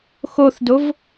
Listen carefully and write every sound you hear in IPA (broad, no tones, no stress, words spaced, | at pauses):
xoθdov